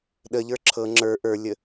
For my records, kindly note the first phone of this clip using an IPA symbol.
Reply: ɗ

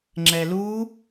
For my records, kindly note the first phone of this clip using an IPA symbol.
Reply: ŋ͡ǁ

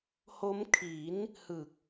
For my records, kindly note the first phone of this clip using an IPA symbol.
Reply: h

